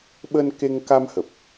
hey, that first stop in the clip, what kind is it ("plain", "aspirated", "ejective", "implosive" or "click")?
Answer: implosive